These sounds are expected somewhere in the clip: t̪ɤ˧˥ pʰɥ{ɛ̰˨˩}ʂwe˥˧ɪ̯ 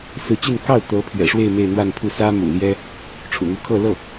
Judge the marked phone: correct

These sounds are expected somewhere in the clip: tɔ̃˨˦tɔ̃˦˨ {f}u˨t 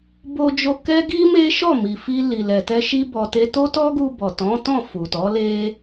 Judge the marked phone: correct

